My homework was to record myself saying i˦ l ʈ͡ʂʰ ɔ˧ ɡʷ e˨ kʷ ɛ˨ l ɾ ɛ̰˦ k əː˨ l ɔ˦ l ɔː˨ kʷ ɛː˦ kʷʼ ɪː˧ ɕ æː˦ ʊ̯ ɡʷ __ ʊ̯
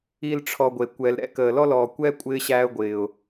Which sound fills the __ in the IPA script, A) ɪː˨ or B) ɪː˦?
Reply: A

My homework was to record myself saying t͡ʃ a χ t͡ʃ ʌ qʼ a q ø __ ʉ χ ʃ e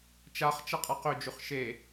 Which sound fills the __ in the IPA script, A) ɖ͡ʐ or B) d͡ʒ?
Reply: B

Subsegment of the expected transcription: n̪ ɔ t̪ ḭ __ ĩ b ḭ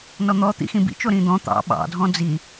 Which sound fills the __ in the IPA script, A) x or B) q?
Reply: A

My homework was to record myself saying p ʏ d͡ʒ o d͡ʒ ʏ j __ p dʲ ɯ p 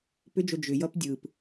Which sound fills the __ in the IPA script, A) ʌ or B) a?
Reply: A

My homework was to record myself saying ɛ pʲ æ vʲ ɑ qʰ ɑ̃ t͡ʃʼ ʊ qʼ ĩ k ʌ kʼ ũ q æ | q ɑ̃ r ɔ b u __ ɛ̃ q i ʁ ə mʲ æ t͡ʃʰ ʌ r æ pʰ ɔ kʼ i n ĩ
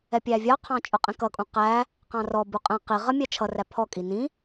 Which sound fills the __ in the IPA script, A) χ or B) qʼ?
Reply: B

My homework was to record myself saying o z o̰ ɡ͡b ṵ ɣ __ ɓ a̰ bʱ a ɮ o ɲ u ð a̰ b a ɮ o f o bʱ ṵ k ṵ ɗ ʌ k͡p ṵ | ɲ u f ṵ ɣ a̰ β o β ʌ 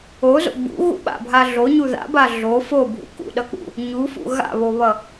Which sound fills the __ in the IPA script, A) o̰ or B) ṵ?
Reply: B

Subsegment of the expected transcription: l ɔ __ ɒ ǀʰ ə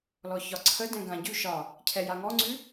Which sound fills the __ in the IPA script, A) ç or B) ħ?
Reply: A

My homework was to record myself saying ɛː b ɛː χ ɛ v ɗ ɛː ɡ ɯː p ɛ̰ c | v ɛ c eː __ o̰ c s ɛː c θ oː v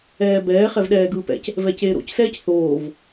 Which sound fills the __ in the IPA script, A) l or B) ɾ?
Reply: B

